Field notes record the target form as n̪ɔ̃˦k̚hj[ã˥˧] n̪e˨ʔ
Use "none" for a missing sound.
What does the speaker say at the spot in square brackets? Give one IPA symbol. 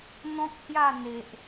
a˥˧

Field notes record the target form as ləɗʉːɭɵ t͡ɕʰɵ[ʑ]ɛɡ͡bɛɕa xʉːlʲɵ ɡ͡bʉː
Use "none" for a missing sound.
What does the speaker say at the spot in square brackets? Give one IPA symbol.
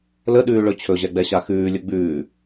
ʑ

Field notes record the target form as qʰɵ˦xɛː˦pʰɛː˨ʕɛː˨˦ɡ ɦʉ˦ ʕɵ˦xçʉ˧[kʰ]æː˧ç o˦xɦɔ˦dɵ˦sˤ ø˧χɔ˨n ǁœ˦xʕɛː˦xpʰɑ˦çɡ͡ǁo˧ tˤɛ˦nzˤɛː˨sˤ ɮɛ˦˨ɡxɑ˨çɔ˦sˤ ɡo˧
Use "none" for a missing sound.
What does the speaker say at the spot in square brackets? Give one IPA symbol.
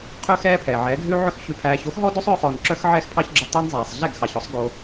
pʰ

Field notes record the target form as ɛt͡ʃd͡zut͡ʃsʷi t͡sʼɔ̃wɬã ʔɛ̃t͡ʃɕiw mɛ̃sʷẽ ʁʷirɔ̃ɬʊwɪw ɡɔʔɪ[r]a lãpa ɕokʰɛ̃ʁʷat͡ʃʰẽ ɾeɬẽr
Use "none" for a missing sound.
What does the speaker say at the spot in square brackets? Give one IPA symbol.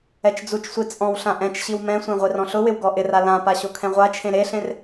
r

